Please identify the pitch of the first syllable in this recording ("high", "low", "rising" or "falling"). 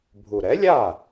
low